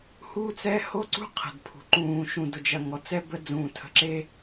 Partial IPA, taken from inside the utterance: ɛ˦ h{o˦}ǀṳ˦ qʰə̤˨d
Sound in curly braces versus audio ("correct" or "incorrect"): correct